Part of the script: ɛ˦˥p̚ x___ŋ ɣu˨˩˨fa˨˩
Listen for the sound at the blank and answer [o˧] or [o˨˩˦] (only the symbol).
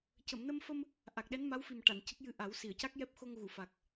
o˧